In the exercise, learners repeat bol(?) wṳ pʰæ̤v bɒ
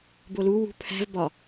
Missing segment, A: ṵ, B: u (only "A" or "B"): B